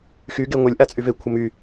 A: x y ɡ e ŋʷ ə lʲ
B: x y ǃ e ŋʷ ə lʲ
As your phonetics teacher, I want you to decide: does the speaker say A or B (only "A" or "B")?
A